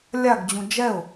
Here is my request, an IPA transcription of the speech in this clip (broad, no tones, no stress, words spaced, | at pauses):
lʲaɡd͡ʑũ d͡ʒɛʊ̯